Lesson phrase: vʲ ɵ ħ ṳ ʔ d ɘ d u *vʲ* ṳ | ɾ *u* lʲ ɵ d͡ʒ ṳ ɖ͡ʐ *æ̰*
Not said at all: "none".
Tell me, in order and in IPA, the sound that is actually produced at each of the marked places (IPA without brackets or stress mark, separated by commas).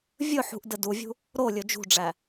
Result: vʲ, o, æ